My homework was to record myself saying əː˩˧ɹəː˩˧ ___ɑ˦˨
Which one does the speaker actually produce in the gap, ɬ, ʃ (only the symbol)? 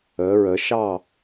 ʃ